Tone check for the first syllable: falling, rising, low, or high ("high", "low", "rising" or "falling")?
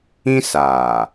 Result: high